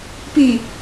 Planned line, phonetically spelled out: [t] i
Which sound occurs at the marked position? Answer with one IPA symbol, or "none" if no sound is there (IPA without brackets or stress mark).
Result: p